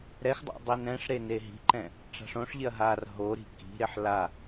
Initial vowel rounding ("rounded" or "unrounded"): unrounded